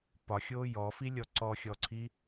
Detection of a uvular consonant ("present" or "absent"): absent